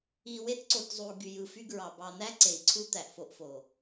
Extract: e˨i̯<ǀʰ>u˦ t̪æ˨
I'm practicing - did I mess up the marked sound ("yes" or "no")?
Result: no